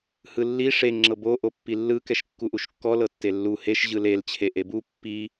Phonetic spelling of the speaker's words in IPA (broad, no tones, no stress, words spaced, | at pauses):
hɯlːi ʂe ŋ͡ǁɤbo ʔopːilːɯ kɛʃkːuʔuʃkːɔ lɤtːelːu heʃ ʑɯlel t͡ɕʰeʔebu pːi